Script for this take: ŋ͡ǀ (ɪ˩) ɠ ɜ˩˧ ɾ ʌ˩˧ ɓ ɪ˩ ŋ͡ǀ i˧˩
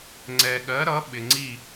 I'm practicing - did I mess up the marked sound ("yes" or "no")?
yes